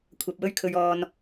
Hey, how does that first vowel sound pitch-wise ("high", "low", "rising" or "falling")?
low